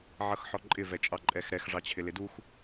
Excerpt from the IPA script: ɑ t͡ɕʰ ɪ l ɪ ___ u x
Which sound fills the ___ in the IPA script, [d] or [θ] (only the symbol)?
d